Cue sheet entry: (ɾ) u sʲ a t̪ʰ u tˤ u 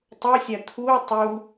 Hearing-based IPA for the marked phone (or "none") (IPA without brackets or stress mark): tˤ